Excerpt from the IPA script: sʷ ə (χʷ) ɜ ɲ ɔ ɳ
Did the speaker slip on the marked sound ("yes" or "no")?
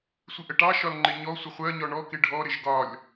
no